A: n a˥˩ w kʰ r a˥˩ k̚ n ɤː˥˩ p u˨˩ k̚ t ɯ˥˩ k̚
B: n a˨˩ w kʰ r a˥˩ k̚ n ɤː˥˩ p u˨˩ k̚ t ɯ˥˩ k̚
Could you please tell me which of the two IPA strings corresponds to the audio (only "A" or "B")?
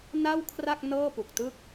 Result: A